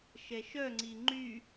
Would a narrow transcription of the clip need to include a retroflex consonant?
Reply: no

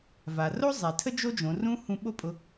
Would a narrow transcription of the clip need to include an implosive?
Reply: yes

